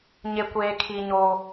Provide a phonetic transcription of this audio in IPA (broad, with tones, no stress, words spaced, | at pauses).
ɲe˦kʷeː˦ kʰi˦ɲo˦